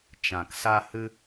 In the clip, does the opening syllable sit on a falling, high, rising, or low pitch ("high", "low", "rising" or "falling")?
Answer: low